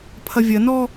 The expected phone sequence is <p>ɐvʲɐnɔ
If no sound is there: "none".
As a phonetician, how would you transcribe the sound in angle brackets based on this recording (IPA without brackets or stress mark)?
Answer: pʰ